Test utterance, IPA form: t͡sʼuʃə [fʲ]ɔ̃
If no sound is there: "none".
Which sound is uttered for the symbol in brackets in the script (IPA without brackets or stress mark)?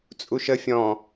fʲ